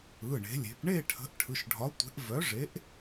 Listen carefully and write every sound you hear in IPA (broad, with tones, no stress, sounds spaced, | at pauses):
ɯ˩˧˩ ɳ e̤˩˧ lʲ e̤˩˧ p ɳ e˥˧ ʈʰ ə̤˨˥ ʔ ʈʰ ɯ˩˧˩ ʃ ɖʱ ɒ˨˥ tʷ e̤˨˥ ʔ v œ˨˥ ʐ e˨˥ ʔ